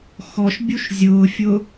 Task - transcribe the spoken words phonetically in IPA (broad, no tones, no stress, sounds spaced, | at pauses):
x ɔ ʃ bʲ u ʃ zʲ ʊː fʲ ʊ